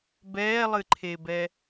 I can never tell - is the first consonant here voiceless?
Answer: no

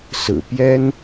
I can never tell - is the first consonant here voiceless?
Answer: yes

